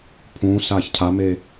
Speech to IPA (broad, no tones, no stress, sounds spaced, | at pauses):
pʰ ũː s aː ç cʰ a m e